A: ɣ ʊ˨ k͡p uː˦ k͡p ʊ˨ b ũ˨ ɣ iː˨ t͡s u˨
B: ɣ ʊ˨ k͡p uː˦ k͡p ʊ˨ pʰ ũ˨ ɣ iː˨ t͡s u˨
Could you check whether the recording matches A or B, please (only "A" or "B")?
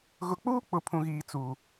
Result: B